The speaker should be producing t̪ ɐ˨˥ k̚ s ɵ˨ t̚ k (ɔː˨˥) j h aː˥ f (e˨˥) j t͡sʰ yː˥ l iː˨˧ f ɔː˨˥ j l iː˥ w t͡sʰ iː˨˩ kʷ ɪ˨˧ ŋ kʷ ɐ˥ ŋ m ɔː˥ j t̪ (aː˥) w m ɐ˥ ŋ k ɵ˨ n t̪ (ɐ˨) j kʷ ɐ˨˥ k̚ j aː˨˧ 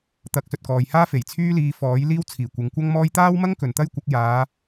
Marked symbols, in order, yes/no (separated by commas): no, no, yes, no